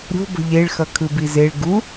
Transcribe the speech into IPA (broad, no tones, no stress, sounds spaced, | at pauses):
ɾʲ o̤ b ə̤ ʎ e ɭ x ʌ kʰ ɯ b i z e ɭ ɡ u